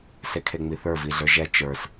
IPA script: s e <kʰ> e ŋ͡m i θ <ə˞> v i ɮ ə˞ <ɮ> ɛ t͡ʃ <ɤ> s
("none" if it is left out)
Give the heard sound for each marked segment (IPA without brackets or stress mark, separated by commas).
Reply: kʰ, ə˞, ʒ, ə˞